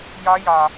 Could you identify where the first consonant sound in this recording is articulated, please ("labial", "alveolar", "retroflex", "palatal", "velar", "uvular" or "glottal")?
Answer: palatal